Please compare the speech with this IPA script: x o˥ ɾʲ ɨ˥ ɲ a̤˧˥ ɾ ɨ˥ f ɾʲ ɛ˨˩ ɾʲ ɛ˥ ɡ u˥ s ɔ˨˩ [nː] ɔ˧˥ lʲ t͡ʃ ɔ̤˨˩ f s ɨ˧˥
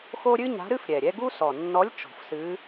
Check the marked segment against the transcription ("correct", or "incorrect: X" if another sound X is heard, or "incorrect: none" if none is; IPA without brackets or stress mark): correct